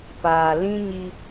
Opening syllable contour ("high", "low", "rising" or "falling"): low